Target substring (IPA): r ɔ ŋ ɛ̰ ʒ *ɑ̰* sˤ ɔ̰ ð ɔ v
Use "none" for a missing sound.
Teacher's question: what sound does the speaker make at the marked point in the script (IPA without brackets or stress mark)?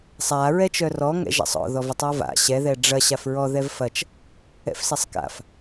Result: a̰